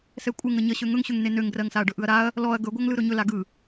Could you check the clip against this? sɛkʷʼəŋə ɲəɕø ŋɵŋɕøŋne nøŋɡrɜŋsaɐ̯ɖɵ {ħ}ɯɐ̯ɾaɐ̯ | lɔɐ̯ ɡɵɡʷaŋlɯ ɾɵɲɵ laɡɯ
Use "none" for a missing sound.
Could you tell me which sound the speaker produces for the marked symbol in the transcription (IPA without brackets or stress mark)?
ʔ